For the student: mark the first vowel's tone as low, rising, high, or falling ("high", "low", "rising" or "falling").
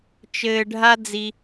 low